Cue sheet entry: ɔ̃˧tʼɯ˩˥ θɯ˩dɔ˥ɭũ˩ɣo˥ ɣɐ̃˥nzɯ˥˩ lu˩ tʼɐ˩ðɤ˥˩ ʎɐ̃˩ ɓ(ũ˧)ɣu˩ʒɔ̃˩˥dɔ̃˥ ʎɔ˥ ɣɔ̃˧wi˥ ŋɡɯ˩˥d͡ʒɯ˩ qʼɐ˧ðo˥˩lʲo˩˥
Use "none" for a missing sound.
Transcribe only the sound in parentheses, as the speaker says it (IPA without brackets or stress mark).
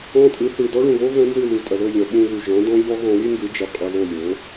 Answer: ũ˧